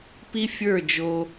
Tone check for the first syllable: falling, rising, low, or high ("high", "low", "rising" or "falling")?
high